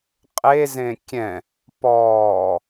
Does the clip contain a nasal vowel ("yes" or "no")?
yes